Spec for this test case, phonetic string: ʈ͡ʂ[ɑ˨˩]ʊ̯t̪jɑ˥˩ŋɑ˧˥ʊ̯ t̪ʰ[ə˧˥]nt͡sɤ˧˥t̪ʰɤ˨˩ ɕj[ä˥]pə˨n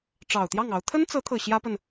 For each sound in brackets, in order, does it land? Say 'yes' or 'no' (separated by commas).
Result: yes, no, yes